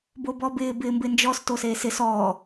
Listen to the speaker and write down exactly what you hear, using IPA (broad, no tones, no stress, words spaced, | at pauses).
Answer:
bobɔbɪː bɪːmbɪnd͡ʒɔs toseːsɪs ɔː